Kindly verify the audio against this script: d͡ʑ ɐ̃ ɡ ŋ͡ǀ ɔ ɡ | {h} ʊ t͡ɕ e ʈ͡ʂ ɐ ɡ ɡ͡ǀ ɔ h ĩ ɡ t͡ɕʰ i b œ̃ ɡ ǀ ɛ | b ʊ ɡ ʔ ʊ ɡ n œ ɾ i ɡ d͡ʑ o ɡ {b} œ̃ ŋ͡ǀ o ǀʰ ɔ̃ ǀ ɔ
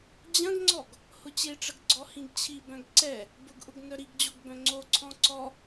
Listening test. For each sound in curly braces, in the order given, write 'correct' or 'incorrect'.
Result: correct, correct

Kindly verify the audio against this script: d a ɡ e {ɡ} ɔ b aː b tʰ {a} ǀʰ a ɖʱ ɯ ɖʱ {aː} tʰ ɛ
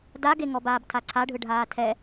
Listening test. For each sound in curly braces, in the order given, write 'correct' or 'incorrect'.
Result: incorrect: ŋ, correct, correct

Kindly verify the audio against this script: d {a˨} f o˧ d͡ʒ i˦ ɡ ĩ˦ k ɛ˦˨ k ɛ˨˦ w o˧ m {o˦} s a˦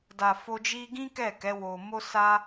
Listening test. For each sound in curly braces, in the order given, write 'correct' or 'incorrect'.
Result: correct, correct

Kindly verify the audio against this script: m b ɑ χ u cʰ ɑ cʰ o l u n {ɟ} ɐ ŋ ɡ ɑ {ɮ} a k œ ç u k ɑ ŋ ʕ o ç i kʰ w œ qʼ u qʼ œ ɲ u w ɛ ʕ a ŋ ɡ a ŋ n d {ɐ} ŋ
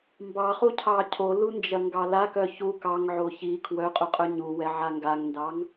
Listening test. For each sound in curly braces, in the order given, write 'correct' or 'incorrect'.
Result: incorrect: d͡ʒ, incorrect: l, incorrect: ɑ

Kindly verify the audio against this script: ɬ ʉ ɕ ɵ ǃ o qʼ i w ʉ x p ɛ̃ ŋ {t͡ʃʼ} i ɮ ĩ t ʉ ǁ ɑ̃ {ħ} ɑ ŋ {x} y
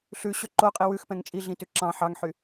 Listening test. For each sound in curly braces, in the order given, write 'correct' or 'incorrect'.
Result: correct, correct, incorrect: ħ

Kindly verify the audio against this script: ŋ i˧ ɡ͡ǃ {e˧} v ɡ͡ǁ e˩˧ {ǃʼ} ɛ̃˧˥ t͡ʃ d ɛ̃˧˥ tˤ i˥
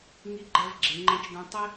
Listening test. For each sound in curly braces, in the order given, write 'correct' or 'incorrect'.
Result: incorrect: ɛ˧, incorrect: ŋ͡ǃ

